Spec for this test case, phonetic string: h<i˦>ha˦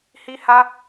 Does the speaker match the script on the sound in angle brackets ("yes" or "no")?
yes